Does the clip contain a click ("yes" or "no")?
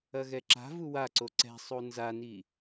yes